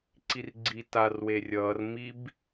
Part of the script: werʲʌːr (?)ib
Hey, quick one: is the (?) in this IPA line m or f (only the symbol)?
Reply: m